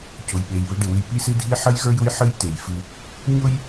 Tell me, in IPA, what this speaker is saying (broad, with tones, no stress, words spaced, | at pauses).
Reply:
cʊ˩jɓe˩j βɪ˧ɖɪ˩wɨ˧j pi˥sɨ˥dʱi˥ ħə˥jɣə˞˥jʊ˥j ħɨ˥j te˩j fɨ˧ | ɲʊ˥j